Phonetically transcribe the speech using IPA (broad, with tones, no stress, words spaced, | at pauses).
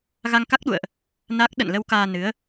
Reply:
ɣa˧ŋka˦˥k̚ɗṵ˧˨ə̯ʔ | na˦˥k̚ ɗə̰˧˨nlə˧w kaː˧nɨ˨˦ə̯